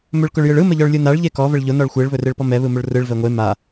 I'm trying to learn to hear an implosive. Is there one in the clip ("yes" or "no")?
no